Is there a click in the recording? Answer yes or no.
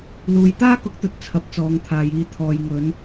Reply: no